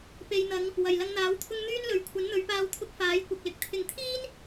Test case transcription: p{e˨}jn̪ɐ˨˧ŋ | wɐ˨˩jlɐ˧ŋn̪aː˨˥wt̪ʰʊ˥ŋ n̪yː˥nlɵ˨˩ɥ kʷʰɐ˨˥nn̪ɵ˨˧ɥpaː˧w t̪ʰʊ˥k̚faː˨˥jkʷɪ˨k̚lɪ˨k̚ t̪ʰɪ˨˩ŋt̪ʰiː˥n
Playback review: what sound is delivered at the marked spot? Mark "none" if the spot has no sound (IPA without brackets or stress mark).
e˨